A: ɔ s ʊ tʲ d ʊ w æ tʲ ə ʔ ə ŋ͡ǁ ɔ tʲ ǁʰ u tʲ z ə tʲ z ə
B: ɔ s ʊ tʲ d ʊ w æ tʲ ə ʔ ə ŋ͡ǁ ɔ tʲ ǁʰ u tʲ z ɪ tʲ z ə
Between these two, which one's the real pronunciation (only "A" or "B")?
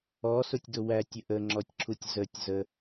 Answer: A